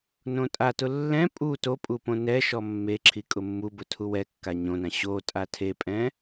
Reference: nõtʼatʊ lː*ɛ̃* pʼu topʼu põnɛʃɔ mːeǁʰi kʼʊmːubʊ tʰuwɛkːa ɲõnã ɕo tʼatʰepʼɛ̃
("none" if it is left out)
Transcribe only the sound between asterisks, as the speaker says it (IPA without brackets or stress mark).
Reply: ɛ̃